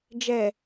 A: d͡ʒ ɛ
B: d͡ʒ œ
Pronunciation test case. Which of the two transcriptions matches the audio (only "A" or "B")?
A